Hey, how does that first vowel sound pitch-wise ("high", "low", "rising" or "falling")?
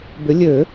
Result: rising